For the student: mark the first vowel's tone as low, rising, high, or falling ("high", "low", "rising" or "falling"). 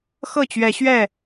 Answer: falling